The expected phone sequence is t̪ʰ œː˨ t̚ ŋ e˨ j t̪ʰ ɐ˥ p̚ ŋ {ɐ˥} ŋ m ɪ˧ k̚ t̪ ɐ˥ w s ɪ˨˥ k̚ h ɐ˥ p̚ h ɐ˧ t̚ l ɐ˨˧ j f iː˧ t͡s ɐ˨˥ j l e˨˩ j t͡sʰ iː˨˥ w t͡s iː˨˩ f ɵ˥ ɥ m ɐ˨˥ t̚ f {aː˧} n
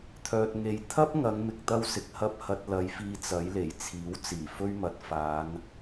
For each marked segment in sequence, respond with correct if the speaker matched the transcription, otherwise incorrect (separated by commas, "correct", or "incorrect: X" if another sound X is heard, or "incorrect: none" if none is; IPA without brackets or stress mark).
incorrect: ɐ˨˧, incorrect: aː˨˧